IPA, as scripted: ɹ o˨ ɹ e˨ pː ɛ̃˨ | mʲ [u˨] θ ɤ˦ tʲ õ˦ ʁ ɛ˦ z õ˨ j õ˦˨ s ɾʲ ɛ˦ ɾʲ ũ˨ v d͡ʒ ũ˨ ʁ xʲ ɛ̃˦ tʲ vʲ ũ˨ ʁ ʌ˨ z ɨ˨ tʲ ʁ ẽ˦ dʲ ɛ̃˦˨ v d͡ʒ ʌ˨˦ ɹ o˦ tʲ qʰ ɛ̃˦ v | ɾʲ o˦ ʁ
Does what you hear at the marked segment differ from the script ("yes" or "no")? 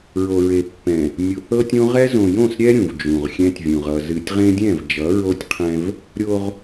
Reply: no